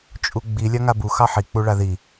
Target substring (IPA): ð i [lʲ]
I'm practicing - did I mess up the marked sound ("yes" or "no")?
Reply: yes